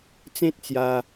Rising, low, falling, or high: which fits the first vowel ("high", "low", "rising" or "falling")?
high